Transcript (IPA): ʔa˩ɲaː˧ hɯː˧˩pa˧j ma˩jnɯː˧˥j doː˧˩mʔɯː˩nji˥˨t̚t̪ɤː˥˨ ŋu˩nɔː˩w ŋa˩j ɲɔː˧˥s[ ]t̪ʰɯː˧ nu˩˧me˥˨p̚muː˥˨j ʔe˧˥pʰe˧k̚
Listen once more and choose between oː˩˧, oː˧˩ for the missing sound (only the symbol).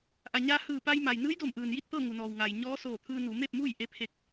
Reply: oː˧˩